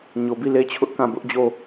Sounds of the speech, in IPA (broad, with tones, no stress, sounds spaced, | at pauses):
ɲ o˨ b i˦˨ l e˦ t͡ɕʰ ʊ˦ ʔ k ã˦˨ b ʊ˦ ʔ d͡ʑ o˦˨